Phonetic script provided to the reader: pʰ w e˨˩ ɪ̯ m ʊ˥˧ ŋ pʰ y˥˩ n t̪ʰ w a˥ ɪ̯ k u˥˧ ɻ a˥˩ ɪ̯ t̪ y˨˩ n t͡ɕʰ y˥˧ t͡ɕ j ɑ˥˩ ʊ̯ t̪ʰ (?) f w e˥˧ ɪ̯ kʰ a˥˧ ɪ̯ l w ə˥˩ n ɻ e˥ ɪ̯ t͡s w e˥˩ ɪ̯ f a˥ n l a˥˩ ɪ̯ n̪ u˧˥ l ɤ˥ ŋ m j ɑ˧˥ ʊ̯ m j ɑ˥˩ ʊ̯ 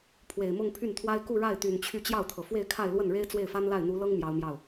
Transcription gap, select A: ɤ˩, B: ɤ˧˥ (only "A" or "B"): A